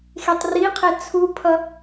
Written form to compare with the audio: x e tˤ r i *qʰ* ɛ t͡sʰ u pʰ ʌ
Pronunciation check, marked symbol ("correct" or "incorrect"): correct